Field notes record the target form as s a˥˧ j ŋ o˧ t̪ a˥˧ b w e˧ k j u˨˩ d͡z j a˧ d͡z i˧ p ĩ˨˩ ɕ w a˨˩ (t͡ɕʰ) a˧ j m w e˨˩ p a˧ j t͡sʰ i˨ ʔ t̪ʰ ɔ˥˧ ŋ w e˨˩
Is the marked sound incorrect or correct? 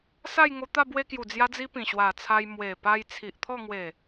incorrect